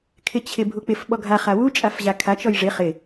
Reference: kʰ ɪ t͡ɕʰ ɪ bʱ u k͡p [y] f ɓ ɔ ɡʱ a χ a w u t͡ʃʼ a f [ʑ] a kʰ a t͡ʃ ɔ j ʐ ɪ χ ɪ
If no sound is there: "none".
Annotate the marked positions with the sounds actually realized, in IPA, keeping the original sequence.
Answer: ɪ, ʑ

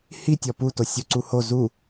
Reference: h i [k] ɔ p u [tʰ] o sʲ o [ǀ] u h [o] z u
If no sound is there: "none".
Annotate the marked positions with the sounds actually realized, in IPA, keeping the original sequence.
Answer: tʲ, t, ǀ, o

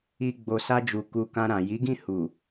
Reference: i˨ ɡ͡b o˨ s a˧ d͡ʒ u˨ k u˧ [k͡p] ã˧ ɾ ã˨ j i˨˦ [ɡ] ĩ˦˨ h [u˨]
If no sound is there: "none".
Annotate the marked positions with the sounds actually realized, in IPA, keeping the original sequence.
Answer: k, ɡ, u˨

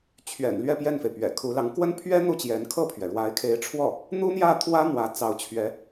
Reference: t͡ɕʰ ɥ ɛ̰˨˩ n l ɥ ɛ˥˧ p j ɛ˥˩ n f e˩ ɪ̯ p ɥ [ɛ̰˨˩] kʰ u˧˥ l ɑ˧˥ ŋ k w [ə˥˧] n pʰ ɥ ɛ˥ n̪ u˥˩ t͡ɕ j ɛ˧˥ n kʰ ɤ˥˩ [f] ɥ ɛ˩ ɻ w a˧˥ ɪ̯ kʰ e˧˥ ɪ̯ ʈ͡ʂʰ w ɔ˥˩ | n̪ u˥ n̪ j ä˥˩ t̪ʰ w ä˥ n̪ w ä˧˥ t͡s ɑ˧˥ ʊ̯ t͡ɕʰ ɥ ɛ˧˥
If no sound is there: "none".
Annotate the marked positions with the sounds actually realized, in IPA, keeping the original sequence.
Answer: ɛ̰˨˩, ə˥, pʰ

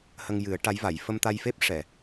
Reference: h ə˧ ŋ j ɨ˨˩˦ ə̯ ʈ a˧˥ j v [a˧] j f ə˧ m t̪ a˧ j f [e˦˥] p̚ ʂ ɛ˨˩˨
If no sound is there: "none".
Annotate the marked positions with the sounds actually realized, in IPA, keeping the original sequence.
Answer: a˨˩˨, e˦˥

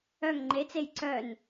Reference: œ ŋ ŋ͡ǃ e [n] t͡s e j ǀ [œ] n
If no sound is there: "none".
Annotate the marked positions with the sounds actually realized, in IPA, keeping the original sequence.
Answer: none, œ

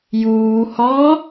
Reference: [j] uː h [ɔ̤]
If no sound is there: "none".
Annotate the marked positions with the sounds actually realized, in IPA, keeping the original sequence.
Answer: j, ɔ

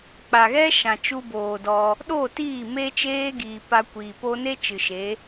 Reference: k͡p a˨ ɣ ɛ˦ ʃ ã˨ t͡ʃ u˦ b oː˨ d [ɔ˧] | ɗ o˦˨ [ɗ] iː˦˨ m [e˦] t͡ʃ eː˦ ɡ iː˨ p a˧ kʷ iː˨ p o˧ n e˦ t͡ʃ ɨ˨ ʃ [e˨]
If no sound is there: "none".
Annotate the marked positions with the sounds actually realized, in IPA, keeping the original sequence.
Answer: ɔ˧, t, e˦, e˨˦

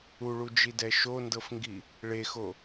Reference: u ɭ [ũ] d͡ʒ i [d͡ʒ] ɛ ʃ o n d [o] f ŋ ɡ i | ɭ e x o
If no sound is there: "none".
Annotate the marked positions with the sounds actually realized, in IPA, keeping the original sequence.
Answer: u, d, ɤ

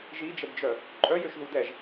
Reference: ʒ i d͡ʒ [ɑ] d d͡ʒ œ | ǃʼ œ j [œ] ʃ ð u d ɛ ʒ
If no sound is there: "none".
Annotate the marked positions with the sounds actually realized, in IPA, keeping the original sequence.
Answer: ə, ø

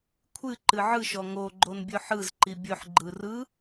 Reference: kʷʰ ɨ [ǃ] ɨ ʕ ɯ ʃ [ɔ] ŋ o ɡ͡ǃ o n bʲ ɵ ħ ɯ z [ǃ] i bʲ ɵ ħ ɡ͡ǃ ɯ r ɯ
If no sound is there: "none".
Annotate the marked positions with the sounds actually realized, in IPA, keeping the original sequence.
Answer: ǃ, ɔ, ǃ

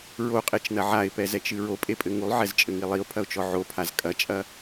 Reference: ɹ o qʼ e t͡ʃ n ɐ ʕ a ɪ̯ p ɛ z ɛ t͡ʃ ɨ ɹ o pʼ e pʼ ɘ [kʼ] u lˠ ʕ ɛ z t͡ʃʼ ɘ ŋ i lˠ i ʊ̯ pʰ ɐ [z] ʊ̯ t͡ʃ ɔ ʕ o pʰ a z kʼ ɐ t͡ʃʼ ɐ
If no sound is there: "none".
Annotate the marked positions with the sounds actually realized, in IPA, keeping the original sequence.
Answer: ŋ, none

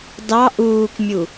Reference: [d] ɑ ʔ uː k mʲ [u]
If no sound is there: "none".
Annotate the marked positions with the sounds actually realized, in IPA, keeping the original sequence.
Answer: d, u

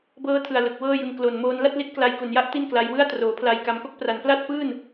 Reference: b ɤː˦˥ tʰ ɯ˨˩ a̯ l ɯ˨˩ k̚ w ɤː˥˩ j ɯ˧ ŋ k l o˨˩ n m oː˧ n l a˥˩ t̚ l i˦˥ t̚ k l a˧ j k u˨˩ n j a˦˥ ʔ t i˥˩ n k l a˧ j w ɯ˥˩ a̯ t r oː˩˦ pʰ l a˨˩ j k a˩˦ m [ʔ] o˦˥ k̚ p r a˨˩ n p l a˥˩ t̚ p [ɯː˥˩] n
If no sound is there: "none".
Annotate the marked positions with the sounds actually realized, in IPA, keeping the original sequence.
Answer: k, ɯː˥˩

